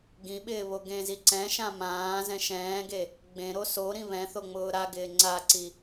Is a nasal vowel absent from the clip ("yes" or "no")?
no